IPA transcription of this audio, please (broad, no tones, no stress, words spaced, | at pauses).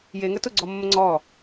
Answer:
jeŋə tʊɡ͡ǀɔmːə ŋ͡ǀɔ